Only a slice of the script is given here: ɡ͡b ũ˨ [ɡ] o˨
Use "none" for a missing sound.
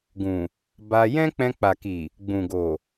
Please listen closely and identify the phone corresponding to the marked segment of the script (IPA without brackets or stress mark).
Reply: ɡ